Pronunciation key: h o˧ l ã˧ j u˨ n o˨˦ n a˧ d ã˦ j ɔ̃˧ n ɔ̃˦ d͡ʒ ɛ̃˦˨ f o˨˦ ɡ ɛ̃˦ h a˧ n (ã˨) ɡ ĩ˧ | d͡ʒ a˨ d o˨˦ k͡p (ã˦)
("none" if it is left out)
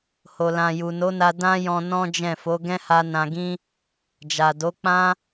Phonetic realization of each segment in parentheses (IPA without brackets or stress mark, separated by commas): ã˨, ã˦